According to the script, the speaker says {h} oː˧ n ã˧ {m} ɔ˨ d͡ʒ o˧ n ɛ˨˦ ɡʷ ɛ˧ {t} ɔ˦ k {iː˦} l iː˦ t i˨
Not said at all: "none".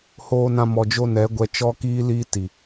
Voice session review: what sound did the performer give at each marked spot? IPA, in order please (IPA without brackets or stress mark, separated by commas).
h, m, t͡ʃ, iː˦